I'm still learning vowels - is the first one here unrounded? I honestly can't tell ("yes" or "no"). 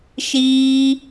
yes